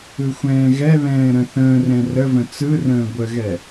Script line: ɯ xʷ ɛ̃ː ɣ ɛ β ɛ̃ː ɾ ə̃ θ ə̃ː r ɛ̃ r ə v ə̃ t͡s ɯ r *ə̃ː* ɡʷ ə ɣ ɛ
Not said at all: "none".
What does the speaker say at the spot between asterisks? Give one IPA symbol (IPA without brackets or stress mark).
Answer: ə̃ː